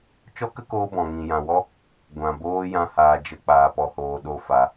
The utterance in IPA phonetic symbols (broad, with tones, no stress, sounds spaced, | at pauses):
t͡ʃ ɔ˦ k ə˦ k oː˧ b ɔ̃˨ ŋ ĩ˨ j ã˨ w ɔ˦ | ɡʷ ã˨ b oː˦ j ã˦ h aː˧ d͡ʒ ə˦ k͡p aː˧ p ɔ˧ h oː˧ ɗ o˦ f a˧